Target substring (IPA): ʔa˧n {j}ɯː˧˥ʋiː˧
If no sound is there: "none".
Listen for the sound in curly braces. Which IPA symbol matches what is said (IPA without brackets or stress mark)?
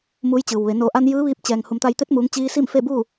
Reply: j